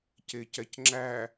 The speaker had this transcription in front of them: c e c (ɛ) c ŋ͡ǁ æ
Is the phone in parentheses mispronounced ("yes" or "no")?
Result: no